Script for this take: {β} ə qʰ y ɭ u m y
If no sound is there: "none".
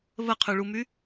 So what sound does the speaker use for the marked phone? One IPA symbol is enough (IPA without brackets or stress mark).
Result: β